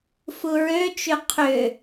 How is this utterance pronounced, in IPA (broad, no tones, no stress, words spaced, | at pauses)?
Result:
fuɹøt͡ʃø qʰʏ